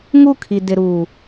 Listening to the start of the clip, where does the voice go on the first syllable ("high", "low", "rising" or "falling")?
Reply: falling